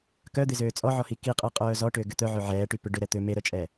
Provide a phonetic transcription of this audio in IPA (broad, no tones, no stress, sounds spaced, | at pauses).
k œ d̪ ɪ z øː t͡sʼ ɔ ʕ ɔ h i k i qʼ ɛ qʼ œː z ɔ ʈ ʏː ɡ ʏ t̪ œ ʕ ø ʕ ɛː ʈ y p ʏ ɖ ʏ ɾ ɛ t̪ ø m e ɾ œ t͡ʃʼ ɛ